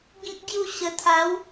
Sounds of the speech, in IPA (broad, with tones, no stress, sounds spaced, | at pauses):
ɡ ĩ˦ k̚ ɡ j u˥˧ ɕ ə˧ t̪ʰ a˨˦ w